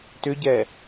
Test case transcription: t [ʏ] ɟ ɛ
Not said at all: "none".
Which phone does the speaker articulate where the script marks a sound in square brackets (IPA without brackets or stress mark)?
ʏ